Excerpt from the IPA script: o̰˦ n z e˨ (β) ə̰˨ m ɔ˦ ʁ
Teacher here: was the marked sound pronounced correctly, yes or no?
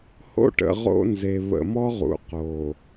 yes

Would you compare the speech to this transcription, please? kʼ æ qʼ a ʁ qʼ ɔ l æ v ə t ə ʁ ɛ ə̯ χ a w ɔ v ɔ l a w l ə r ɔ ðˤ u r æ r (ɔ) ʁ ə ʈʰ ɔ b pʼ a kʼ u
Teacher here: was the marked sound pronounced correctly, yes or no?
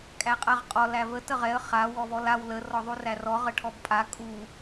yes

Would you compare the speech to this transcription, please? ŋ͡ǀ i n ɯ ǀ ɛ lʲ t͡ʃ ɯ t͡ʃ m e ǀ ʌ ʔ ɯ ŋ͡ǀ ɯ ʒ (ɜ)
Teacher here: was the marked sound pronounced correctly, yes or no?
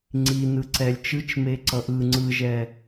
no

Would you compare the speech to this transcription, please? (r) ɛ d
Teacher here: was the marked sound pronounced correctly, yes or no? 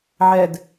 no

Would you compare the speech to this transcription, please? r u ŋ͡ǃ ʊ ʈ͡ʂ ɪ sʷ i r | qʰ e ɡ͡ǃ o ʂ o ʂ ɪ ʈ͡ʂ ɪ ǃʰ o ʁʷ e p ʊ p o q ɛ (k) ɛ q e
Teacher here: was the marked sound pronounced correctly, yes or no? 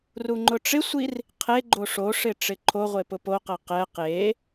no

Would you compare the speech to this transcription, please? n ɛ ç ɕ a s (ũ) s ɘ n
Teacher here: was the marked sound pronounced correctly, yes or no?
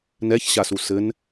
no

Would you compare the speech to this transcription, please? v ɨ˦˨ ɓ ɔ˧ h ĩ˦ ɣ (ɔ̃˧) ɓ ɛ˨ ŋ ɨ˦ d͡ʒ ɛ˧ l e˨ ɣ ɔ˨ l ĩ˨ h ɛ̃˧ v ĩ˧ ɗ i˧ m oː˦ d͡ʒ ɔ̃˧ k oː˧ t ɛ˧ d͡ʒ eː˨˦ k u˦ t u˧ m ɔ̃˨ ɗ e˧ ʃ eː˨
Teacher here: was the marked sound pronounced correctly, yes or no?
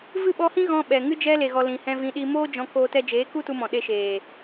yes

